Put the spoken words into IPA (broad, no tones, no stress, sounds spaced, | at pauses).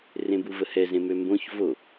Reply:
r ẽ b u v ə h ɛ z ẽ m ø m b õ ç v o